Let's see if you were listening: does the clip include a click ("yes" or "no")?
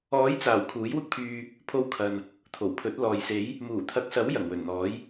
no